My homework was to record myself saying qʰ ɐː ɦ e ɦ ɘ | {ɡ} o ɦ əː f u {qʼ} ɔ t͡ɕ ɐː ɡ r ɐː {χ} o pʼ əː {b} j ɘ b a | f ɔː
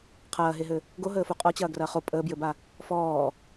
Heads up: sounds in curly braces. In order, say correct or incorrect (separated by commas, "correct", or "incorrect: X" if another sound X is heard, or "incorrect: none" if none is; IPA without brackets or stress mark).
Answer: correct, correct, correct, correct